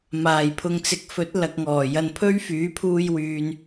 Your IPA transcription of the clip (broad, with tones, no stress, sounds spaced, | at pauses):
m aː˨˩ j pʰ ʊ˨ ŋ t͡s ɪ˨ k̚ f ɵ˨˥ t̚ l ɐ˨ k̚ ŋ ɔː˨˩ j ɐ˧ n pʰ ɵ˥ ɥ f yː˨˥ pʰ uː˧ j w yː˨ n